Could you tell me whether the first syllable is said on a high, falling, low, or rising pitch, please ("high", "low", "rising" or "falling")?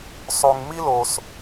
low